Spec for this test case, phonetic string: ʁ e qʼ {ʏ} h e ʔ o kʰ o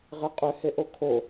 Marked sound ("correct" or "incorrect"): correct